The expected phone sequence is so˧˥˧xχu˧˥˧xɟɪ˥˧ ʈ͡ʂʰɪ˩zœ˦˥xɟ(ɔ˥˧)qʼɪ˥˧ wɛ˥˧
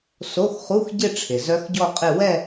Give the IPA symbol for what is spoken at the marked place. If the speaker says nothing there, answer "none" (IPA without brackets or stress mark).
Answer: ɔ˥˧